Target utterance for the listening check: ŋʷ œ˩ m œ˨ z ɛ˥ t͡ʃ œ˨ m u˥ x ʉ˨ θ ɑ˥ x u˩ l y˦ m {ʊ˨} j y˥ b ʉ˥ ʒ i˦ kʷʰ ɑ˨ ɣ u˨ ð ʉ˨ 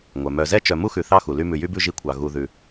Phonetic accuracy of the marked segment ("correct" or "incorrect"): incorrect